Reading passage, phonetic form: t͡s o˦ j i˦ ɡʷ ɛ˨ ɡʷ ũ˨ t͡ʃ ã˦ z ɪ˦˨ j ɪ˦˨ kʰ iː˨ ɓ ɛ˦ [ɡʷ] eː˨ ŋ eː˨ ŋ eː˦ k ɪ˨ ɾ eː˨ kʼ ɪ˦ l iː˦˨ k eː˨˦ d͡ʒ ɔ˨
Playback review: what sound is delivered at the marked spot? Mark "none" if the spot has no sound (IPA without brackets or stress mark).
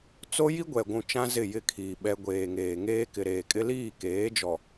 ɡʷ